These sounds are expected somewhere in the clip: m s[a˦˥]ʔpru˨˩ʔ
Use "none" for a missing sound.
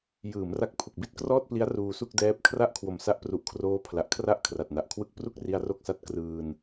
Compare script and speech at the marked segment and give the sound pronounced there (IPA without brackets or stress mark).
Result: a˦˥